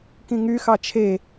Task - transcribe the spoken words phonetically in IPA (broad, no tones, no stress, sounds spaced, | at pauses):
k ĩ ŋ y x ɑ t͡ʃʰ e